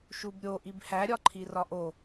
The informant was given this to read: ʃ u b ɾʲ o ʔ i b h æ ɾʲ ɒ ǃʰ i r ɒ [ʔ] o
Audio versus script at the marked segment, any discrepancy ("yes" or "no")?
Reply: no